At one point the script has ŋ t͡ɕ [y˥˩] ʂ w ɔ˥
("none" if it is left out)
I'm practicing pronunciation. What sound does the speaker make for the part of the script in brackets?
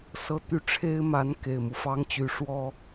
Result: y˧˥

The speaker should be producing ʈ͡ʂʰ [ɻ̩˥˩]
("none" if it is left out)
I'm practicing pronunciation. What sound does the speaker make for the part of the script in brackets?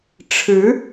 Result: ɻ̩˧˥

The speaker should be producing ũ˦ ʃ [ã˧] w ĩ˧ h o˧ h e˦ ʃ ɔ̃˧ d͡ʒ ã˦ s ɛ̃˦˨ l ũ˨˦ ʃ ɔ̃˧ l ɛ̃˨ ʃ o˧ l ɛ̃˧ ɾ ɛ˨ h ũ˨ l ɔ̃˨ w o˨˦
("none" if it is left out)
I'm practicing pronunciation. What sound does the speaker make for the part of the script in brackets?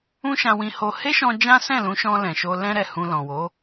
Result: ã˧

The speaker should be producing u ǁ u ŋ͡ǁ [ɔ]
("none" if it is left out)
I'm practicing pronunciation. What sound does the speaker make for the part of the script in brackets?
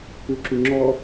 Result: ɔ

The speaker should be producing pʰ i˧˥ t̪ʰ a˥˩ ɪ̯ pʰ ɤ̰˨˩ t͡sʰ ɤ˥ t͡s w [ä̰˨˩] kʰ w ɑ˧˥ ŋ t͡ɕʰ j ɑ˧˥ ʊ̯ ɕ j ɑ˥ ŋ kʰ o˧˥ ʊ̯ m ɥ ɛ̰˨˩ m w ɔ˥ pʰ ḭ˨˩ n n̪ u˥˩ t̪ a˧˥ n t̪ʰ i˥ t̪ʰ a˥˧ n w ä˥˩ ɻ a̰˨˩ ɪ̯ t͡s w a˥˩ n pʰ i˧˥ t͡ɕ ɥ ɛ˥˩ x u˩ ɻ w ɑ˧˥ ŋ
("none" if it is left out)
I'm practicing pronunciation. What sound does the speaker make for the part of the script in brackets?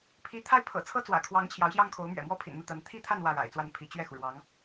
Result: ä̰˨˩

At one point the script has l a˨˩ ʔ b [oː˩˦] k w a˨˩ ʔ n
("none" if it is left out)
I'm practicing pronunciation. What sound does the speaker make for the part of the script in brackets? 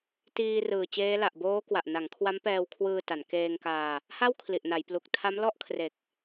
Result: oː˦˥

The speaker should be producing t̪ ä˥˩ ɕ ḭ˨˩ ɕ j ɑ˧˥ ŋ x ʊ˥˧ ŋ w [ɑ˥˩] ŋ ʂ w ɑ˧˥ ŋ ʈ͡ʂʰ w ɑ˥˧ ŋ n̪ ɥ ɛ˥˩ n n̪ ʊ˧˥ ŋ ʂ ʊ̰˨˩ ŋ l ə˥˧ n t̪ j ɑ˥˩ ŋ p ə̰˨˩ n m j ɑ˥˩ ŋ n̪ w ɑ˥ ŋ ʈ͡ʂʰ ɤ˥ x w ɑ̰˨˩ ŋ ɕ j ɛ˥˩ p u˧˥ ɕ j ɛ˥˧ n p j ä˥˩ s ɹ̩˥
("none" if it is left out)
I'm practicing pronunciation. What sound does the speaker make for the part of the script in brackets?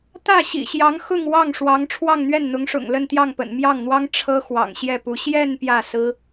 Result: ɑ˥˩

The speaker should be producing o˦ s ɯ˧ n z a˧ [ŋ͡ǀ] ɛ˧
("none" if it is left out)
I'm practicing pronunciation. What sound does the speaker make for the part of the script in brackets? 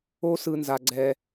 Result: ɡ͡ǀ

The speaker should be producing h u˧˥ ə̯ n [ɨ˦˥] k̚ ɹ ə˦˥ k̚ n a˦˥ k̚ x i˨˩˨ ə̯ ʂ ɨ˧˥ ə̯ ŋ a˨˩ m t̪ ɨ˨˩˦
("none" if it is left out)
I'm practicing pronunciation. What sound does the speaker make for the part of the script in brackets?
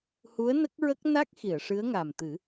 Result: ə˦˥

